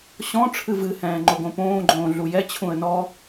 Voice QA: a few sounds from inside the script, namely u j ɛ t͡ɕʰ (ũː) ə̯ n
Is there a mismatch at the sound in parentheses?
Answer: yes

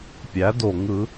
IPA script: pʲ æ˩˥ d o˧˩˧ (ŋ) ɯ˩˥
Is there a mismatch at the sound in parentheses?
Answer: no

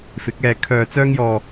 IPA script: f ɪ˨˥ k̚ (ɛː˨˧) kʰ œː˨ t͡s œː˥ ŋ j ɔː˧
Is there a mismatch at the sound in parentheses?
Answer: no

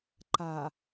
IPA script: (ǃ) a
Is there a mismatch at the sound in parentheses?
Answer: no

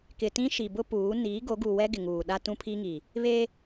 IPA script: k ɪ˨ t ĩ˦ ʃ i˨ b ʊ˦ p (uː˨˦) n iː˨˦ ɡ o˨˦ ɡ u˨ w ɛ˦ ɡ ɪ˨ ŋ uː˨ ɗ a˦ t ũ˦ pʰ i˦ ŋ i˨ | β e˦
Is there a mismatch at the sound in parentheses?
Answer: no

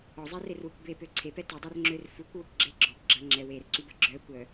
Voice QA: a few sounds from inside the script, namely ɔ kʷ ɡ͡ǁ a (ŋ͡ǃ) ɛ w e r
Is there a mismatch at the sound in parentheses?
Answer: yes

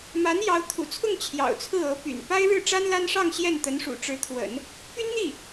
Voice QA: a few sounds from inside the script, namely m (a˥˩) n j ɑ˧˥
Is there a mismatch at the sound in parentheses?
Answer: yes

